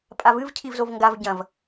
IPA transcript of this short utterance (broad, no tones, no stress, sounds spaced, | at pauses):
pʼ a v ɨ v cʰ i v z o v ŋ ɡ a v ɟ ɐ̃ v